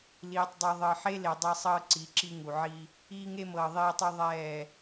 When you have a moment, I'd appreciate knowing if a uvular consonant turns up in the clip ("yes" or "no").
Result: no